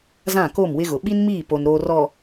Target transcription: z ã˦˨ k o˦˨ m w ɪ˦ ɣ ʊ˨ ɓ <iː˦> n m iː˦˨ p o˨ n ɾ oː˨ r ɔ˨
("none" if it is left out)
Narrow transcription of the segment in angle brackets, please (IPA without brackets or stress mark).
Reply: i˦